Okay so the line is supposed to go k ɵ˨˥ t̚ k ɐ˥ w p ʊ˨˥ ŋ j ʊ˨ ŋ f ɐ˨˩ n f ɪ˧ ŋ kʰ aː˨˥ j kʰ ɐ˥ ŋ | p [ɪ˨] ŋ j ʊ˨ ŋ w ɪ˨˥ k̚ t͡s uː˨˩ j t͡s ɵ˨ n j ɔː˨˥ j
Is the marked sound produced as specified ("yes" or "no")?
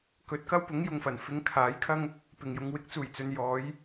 no